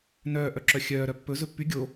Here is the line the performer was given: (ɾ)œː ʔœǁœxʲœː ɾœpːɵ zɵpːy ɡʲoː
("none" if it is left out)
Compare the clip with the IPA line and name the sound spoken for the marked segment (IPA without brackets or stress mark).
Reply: n